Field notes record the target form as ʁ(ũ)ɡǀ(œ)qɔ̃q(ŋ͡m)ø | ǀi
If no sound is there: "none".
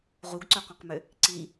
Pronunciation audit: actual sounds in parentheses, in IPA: u, œ, m

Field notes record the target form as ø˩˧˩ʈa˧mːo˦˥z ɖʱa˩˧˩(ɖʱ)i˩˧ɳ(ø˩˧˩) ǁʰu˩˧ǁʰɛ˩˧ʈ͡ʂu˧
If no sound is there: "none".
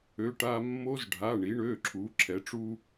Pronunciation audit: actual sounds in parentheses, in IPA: ɳ, ø˩˧˩

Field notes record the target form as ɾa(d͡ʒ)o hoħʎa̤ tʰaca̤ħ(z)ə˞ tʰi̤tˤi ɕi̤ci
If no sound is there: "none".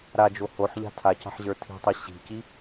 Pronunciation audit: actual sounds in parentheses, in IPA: d͡ʒ, ʑ

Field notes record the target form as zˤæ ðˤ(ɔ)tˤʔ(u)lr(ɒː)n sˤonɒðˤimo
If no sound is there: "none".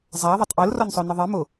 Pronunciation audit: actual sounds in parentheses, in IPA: o, o, ɒ

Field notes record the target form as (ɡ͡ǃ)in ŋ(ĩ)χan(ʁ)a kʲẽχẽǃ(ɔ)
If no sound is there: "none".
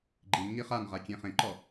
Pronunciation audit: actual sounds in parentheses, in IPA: ɡ͡ǃ, i, ʁ, ɔ

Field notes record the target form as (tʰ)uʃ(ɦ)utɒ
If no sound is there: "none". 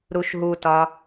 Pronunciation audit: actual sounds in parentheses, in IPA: ɾ, ɦ

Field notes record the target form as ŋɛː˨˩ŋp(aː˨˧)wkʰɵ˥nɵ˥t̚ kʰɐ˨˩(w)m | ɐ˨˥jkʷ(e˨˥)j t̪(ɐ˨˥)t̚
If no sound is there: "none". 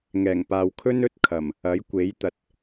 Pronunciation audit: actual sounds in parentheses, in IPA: aː˨, none, e˨˥, ɐ˨˥

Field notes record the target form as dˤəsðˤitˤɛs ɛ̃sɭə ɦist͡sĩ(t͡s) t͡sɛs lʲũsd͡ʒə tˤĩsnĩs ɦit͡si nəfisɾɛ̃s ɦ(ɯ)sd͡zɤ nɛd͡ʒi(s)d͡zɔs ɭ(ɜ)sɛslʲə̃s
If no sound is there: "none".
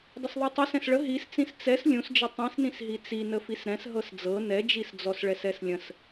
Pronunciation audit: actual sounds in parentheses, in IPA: s, ɤ, s, ɛ

